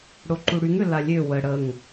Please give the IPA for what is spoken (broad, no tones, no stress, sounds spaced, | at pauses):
ɽ o ǃ u ɽ y ŋ ø l a lʲ ø w ə ɽ ə ŋ